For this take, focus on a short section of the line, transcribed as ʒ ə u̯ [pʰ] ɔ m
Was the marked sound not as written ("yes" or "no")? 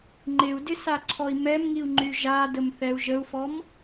yes